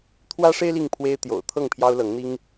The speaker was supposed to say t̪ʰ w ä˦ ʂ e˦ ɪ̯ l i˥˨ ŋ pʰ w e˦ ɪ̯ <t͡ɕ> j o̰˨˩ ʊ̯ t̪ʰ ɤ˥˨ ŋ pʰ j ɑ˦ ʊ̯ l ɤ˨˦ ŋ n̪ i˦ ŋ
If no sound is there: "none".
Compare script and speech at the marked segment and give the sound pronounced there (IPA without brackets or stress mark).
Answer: t̪